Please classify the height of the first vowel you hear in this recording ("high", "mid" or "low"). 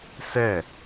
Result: mid